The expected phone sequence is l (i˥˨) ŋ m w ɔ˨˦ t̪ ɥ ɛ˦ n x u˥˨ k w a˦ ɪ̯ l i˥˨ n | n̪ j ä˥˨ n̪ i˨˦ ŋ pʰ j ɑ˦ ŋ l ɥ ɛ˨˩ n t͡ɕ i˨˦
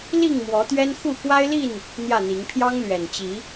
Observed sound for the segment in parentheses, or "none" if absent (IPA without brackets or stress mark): i˥˨